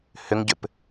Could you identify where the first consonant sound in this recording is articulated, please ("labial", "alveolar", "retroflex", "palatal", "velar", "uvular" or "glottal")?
glottal